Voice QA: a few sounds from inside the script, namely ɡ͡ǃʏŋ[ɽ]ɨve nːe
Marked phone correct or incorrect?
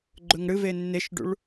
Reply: correct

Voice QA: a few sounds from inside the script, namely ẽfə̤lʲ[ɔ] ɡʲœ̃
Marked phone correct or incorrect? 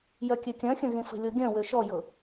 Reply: incorrect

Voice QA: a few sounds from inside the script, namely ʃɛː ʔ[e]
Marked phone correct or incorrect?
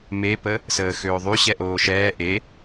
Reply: correct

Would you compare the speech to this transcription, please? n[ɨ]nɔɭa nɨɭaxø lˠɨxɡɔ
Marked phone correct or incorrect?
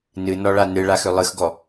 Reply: correct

